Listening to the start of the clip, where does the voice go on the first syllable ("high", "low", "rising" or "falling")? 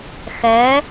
rising